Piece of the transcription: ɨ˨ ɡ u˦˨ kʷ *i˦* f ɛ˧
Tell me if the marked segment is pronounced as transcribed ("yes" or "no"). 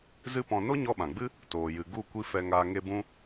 yes